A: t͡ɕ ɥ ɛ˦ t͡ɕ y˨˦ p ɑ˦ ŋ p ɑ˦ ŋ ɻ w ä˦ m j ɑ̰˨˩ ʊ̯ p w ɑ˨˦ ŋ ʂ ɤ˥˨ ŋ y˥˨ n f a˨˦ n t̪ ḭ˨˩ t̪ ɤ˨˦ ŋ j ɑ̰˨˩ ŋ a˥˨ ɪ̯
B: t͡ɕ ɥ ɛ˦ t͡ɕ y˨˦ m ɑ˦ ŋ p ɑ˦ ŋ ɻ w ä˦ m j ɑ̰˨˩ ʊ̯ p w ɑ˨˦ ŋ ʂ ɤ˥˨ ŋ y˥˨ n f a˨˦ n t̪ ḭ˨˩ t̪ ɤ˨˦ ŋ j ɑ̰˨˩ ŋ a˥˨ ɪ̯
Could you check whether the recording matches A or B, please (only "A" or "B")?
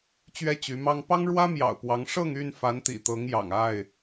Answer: B